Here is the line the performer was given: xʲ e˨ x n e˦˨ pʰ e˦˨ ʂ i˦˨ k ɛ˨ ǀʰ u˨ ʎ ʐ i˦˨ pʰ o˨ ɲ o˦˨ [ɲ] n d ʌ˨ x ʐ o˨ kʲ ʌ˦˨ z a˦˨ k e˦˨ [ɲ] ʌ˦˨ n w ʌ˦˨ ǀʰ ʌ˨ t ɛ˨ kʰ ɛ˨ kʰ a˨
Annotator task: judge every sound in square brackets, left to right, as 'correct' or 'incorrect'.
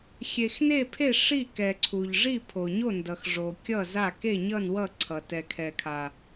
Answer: incorrect: none, correct

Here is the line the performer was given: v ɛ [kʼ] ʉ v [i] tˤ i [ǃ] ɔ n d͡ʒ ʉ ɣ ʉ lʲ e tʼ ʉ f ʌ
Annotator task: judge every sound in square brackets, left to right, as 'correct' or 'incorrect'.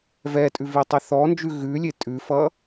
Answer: incorrect: tʼ, correct, incorrect: θ

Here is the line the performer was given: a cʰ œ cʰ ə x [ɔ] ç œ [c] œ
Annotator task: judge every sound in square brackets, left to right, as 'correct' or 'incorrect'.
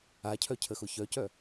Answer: incorrect: ʊ, correct

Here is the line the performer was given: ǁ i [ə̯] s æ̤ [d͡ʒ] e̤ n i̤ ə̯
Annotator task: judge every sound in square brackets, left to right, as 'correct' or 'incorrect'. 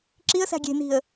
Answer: correct, incorrect: ɡʲ

